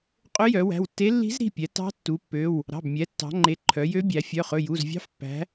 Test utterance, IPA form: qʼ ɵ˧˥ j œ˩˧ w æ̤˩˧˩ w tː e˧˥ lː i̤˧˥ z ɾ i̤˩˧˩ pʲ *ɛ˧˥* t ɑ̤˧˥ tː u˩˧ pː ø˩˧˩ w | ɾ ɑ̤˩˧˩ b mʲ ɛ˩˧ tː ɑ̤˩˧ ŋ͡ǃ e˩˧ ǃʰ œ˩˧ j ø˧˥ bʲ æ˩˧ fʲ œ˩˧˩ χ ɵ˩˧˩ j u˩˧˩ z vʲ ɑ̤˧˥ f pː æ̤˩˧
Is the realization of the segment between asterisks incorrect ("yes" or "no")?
yes